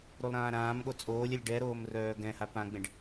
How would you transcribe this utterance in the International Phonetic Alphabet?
ɾ u lˠ ɾ ãː ɾ ãː m ɠ o t͡sʼ oː lʲ ɛ lʲ ɖ ɛ ɾ oː m r œː ɡ ɛ̃ h a p ã ɡ͡b ẽ ɖ

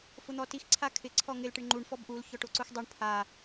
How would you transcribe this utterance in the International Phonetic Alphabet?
f ʊ n̪ ɔ t i x ǀʰ a kʰ ɪ ǀʰ ɔ ŋ ɪ l ʈ ɪ ɳ ŋ͡ǃ u ɳ f ɔ b ʔ u l ç ɔ ʈ o ǀ u x dˤ u ɳ pʰ a

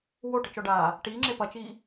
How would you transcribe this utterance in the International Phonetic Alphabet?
w o ʈ ɪ t͡ʃ ɔ ɖ aː | ʈ iː ŋ͡ǁ e p ɐ t͡ʃ iː

